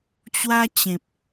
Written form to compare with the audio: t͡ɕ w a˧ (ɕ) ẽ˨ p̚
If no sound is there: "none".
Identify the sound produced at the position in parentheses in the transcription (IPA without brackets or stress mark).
t͡ɕ